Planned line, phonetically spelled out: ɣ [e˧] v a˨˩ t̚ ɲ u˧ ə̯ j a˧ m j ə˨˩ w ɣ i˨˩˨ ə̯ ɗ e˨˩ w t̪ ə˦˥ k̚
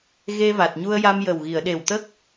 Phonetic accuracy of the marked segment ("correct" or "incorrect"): correct